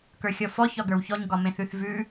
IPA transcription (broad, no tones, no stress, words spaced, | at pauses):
kə˞xʲɔfɔ çɒɡə˞wçɔɲ ɡɒmẽθʉθvʉ